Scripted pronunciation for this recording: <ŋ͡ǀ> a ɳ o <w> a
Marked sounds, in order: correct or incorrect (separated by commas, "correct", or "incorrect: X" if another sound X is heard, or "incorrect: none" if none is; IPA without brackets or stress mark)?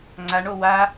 correct, correct